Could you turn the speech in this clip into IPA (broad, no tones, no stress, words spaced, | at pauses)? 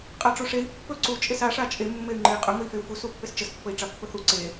qʼaʈ͡ʂuʂei̯ pːɵ ǀu t͡ʃʼesa ʂat͡ʃʼe mːey̯ŋ͡ǃei̯qʼɵ ŋəi̯feu̯fu supːest͡ʃəs pːəi̯ʈ͡ʂapːɵθu ǀe